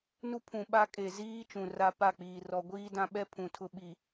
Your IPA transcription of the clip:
n u˦ pʰ ũ˨ ɓ a˦ kʼ e˨ z iː˦ t͡ʃ ũ˨ r a˦ p a˦˨ k͡p iː˨ r ɔ˨ ɡʷ iː˦ d ã˦ ɓ ɛ˦ pʰ ũ˨ tʰ ʊ˦ ɓ i˨

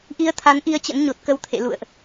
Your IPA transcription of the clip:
ʔ i˧ ə̯ t̪ʰ a˨˦ n ʔ i˧ ə̯ t͡ɕ ə̰˧˥ n ɲ o˨˩ t̚ k ə˨˦ w t̪ʰ ḛ˧˨ l ṵ˧˨ ə̯ ʔ

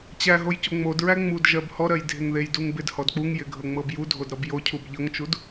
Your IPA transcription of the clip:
t͡ɕ æ ɦ o j c o ŋ͡m o d ɹ æ ŋ͡m u d ʒ ɜ b h ɔ ɾ ɜ j dʱ ɪ ŋ ð e j d u ŋ b ɪ d h ɔ d k͡p u ŋ j ɪ ɡʱ ɤ ŋ͡m ɤ b j u dʱ o d ɾ ɔ b j o cʰ u b ʎ ɤ ŋ t͡ʃ u d

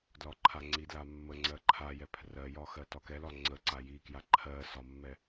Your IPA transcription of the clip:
d l ɒ ǃʰ a ŋ͡ǀ i d l a mː ə ŋ͡ǀ ɜ ǃʰ a j ɛ pʰ r ɜ j ɒ x ɜ t ɒ k ɛ l ɒ ŋ͡ǀ ə ǀ a j i k j a ǃʰ ɜ s ɒ mː ɛ

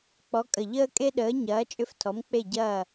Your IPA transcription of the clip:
k͡p ɔ˨˦ kʼ ə˨˩ ʎ əː˦ kʼ e˦ ɗ əː˨˦ ɲ ɐː˨˦ t͡ʃʼ ʏ˦˨ f tʰ ɔ˨˦ m k͡p e˦˨ ɟ ɐː˦˨

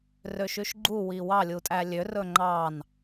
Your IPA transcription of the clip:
r ø ʃ ʉ ʃ ɡ͡ǃ u w i w ɑ lʲ u tʼ æ lʲ ø r ɵ ŋ͡ǃ ɑ n

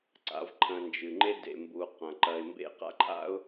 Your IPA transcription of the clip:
ǀ a̰˨ v ǃʰ ɐ̃˨ n d͡ʒ ɨ˩ ŋ͡ǃ e˦ d ḛ˩ m b u˩ q ɐ̃˩ ǃ ɐ˨ ɪ̯ m b ḛ˦ q a̰˥ ǃʰ a̰˥ ʊ̯

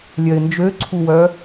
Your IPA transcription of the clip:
lʲ œ ɪ̯ n d͡ʒ ø ǀʰ u w œ

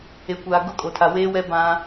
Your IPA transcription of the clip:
e˨ kʷ aː˨ ɡ ʊ˦ kʼ o˨ tʰ a˨ w eː˦ w ɛ˦ b ã˦

